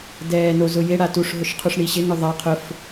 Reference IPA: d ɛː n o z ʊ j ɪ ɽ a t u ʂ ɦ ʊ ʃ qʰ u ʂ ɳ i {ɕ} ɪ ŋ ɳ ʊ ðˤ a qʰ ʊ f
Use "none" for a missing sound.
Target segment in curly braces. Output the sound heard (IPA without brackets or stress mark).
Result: ɕ